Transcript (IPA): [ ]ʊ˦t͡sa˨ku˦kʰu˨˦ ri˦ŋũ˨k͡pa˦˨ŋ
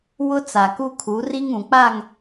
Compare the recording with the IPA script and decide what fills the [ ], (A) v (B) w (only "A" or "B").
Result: B